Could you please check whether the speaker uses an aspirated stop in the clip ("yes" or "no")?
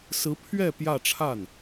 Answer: yes